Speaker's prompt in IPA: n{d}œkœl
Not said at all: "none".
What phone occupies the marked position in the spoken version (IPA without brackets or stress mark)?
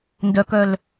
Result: d